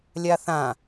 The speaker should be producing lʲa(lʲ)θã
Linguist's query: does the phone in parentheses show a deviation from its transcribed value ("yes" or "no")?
yes